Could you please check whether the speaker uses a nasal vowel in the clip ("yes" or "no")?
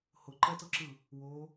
no